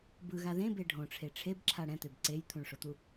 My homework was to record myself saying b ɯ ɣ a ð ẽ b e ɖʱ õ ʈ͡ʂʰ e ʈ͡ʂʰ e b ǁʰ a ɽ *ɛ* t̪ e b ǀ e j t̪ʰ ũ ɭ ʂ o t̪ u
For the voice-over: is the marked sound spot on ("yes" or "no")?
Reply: no